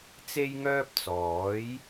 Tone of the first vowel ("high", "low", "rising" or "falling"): high